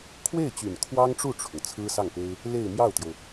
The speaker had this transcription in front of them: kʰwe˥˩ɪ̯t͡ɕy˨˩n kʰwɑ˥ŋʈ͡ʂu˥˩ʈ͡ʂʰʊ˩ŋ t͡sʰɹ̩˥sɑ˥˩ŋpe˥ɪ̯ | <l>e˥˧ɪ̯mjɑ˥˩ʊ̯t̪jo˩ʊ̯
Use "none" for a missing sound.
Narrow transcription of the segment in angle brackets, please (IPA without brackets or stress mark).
l